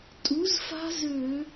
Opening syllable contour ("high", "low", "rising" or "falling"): rising